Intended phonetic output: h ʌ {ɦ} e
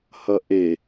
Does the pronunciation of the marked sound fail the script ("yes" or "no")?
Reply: yes